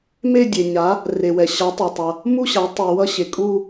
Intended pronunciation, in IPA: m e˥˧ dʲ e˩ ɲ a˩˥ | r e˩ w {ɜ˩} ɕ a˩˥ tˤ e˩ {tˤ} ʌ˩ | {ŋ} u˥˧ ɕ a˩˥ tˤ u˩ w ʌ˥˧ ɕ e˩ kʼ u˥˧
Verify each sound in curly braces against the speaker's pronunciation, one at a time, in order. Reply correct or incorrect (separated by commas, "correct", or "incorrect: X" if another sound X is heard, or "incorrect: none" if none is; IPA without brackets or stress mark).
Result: incorrect: ɛ˩, correct, incorrect: m